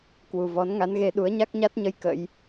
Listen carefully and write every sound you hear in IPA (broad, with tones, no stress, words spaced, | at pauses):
kwu˨˩vɔ˨˦nŋa˨˦nɣe˧ ɗu˨˦ə̯ɲa˦˥k̚ɲa˦˥t̚ɲə˧j kə̰˧˥j